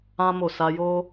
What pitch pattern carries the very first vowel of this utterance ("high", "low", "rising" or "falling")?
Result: high